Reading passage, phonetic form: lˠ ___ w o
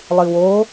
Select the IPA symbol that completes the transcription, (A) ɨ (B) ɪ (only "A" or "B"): A